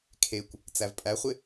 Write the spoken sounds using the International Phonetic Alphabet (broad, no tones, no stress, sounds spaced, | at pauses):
kʰ e kʷ | t͡s æ v pʼ æ χʷ ɪ